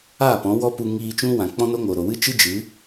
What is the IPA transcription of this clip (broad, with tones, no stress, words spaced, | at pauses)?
a˦˨pɔ̃˨˦ wɔ˦pu˧ ŋiː˧t͡ʃũ˦ wã˨k͡pɔ̃˦no˦ŋo˨ ɾo˨wɨ˦t͡ʃɨ˦ d͡ʒɨ˨˦